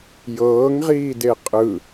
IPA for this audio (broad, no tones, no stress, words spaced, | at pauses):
jɤːŋʁiːde qʼɯ